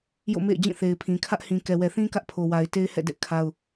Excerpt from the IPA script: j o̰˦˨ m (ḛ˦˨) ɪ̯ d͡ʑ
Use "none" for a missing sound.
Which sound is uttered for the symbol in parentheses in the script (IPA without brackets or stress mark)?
ḛ˦˨